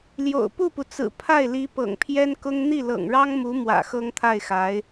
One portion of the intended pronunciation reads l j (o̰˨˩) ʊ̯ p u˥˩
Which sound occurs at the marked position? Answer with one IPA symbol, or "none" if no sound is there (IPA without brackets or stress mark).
o̰˨˩